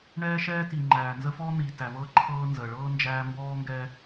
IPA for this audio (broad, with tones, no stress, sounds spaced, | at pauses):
ɳ ɛː˦ ʃ ɛː˦ t i˨ ŋ͡ǃ æː˨ n z ə˦ f ɔː˦ n̪ iː˨ t æ˨ v ɤː˦ ǃʰ ɤː˦ n z əː˨ ɭ ɤː˦ n d͡ʒ æː˦ m b ɔː˦ ŋ ɡ ɛ˦